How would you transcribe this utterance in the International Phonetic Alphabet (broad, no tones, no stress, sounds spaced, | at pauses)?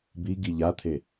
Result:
b i ɡ i ʎ a t̪ʰ e